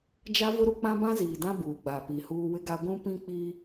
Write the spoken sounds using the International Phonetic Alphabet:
d͡ʒ a˦ v ʊ˦ ɾ u˦ k͡p ã˦ b ã˦ z iː˨ d ã˦ b uː˨ ɡ͡b a˨ p i˨ h uː˦ w ɪ˦ ɡ a˦ ɡʷ ũ˦ p ĩ˦ k͡p iː˦

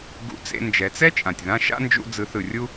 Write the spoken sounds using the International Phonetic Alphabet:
ɡ ṵ˧˥ t͡s ḛ˧ n d͡ʒ ɛ˩˧ t͡s ɛ˥ t͡ʃʼ ã˩ tʲ ð ã˧ ʃ a̰˥ n d͡ʒ ṵ˧ d͡z ɯ˩˧ θ ɯ˩ rʲ u˧

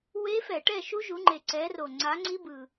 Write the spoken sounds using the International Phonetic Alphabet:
w e˦˥ f ɛ˧˩˧ ʈ ɛ˥˨ ʃ u˦˥ ʒ u˨˦ ŋ͡ǃ e˨˩ ǀ ɛ˨˦ r o˨˩ ŋ͡ǀ a˨˦ ŋ͡ǀ i˦˥ b ɯ˨˩

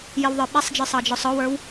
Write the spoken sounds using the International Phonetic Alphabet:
j ɪ w ðˤ ə˞ ɓ æ sˤ d͡ʒ ə˞ sˤ ɑ d͡ʒ ɔ sˤ ɔ w ə˞ w

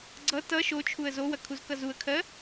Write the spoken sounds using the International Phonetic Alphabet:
ɡ͡ǀ ʌ t ʌ ʃ o t͡ʃʰ u ə̯ z o w ɐ kʰ u z k ʌ z u ə̯ kʰ ɜ

